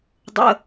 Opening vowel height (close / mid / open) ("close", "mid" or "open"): mid